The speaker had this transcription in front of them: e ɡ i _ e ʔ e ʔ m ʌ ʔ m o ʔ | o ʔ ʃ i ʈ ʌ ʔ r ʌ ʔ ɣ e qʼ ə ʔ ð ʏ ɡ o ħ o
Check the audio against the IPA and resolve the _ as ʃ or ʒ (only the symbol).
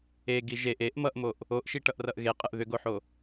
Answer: ʒ